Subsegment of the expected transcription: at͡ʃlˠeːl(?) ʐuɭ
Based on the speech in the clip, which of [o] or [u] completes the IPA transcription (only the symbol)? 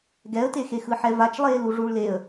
u